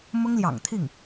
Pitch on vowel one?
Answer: high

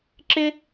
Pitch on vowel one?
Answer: high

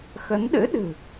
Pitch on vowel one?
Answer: rising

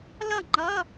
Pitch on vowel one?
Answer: falling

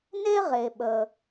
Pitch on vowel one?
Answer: high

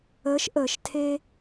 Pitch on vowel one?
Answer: rising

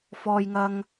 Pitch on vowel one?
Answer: low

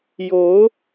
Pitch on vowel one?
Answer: rising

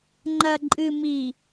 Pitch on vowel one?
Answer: low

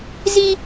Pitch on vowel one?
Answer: high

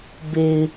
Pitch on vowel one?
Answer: low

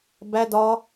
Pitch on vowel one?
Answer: high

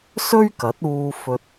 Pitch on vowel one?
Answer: high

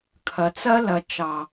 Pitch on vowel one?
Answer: low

